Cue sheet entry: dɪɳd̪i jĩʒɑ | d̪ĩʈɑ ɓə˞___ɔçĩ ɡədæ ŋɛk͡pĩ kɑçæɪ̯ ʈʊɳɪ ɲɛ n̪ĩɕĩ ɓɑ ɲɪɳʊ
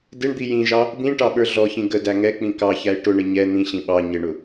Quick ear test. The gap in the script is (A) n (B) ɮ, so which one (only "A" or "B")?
B